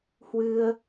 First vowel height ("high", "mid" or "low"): high